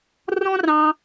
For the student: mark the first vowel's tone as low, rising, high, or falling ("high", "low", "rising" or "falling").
high